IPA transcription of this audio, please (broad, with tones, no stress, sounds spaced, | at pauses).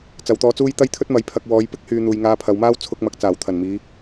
t͡s ɐ˨ w t̪ ɔː˧ t͡s uː˥ j t̪ ɐ˥ j t̪ʰ ɵ˥ t̚ m ɐ˨˥ j pʰ ɐ˨ k̚ w ɔː˨˧ j p ɪ˥ k̚ h yː˨ n̪ uː˨ j ŋ aː˧ pʰ ɐ˨˧ w m aː˥ w t͡sʰ ʊ˧ k̚ m ɐ˨˥ k̚ t͡s aː˨˩ w t̪ʰ ɐ˨˩ n m iː˨˧